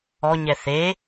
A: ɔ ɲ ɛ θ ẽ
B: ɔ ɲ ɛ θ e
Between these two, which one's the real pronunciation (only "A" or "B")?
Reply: B